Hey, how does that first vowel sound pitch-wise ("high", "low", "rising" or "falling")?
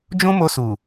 high